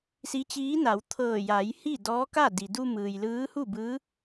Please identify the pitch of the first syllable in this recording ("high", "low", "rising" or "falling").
rising